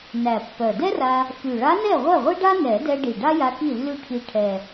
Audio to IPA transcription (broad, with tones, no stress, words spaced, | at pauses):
næ˨˩pːœ˨˩dɛ˥ra˧ | fy˨˩ɭa˧˥nɛ˥˩ ʁʷɛ˥˩ʁʷi˥ɖa˥ nɛ˨˩˦dɛ˧ɖi˨˩ ɖa˥ja˧ ki˥˩lːy˥˩ʈʰi˧ʈʰɛ˨˩